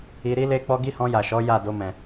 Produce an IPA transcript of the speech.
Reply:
i˧ ɾ i˦ l e˦ k͡p ɔ˦ ɡ i˦ h ɔ̃˧ j a˨ ʃ ɔ˨˦ j a˦˨ d o˧ m ɛ̃˨

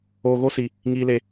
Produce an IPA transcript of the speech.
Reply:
oː˧ ɣ o˦ s i˧ | ŋ iː˧ l e˧

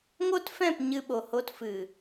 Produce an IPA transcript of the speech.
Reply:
ŋ o˦ t f ɛ̃˦˨ p ɲ ɨ˧ ɓ o˨ h o˧ t f ɨ˨

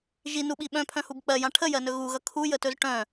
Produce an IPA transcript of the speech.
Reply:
ʒ i n u ɓ i ɓ œ̃ pʰ œ̃ h u b k͡p ɜ j ã ʈʰ ə j ɜ n ɵ ɣ u ɣ ʌ kʰ u j ə t ɵ z ʈ œ̃

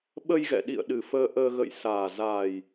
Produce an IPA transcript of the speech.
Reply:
ɓ ə˧ j ɣ ɛ̰˧˨ ɗ ḭ˧˨ ə̯ ɗ ɨ˨˩ f əː˧ ʔ əː˧ ɣ ə̰˧˨ j s aː˨˩ z aː˨˩ j

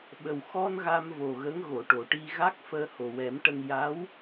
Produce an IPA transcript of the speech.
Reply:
ɓ ə˨˩ w x ɔ˧ n ɣ a˧ m v o˨˩ ɣ ə˧˥ ŋ ɣ o˨˩˨ ʈ o˨˩˨ ʈ i˧ ɣ a˦˥ k̚ f əː˧ h o˨˩ w ɛ˨˩˦ m ʈ ə˧ ŋ j a˧˥ w

